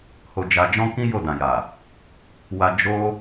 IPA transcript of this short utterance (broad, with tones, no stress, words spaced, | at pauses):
ho˧d͡ʒa˧ d͡ʒɔ̃˦kĩ˦ jo˦˨dã˨ja˨ | wa˧ d͡ʒo˦